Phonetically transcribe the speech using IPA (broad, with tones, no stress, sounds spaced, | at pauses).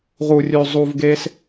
ʁ u˨ rʲ ʉ˨ zˤ u˨ v ɡ e˧ s